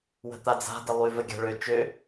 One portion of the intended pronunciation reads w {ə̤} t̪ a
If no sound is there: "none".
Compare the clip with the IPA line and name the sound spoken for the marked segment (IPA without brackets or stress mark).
ə̤